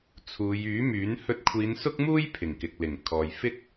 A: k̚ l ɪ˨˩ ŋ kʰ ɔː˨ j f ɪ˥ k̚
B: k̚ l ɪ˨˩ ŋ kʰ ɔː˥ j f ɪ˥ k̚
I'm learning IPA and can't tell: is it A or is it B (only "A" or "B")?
A